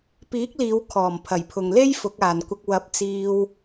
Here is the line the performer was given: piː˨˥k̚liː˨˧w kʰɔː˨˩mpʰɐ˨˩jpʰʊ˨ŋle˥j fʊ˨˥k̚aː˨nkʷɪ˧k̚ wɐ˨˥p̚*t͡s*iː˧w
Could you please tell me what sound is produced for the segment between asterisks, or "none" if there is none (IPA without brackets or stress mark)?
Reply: t͡s